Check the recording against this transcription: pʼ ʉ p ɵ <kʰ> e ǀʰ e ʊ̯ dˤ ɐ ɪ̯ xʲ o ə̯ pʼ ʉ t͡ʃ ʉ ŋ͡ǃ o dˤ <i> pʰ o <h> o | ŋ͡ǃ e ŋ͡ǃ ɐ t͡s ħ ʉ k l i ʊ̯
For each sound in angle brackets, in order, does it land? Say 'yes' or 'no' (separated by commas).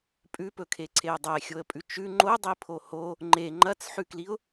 yes, yes, yes